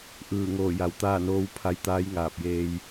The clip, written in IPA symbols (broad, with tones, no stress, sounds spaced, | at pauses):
ʔ ɯː˧˩ ŋ oː˧˩ j a˩˧ w t̪ aː˥˨ n oː˧˥ w pʰ a˧ j t̪ aː˧˥ j ŋ aː˧˩ p̚ j eː˧ j